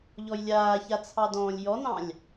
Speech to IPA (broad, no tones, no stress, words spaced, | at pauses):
ʎɔjlʲaːça t͡sʰɑdɔ̃ːlʲjɔnɑ̃lʲ